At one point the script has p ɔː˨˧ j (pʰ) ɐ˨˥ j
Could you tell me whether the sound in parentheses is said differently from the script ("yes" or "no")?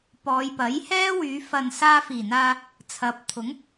yes